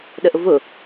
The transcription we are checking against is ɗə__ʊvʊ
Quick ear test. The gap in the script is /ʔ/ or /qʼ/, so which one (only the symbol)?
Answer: ʔ